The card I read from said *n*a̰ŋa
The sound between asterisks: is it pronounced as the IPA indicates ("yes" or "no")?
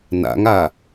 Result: yes